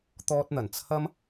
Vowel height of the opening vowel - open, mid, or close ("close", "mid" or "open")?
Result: mid